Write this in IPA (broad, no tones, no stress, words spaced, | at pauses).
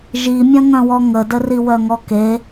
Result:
ʒimʲɐ̃ŋœ̃wɔ ŋədə riwœŋɔke